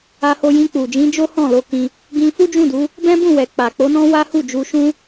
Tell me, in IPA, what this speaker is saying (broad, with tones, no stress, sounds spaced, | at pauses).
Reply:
a˧ h o˧ j ĩ˧ k͡p u˨ d͡ʒ ĩ˨˦ d͡ʒ o˦ h ɔ̃˦˨ l o˧ k ĩ˧ | ɡ ĩ˧ f u˦ d͡ʒ ũ˦˨ d u˨˦ | b ɛ̃˦ b ũ˦˨ w ɛ˨ k͡p a˨ k͡p o˨˦ n ɔ̃˦ w a˦ h u˦˨ d͡ʒ u˧ ʃ ũ˦